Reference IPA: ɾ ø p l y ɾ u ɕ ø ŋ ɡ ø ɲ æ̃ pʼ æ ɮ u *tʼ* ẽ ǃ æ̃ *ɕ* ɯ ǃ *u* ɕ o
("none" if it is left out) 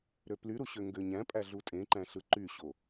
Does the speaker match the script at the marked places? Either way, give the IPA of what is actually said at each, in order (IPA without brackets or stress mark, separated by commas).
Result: tʼ, ɬ, y